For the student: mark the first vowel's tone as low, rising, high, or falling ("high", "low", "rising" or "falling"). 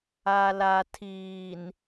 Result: low